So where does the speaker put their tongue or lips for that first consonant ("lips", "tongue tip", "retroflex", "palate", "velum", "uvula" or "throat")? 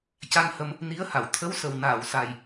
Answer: palate